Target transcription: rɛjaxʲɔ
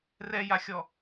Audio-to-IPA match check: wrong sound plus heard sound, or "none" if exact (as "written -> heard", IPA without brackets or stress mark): none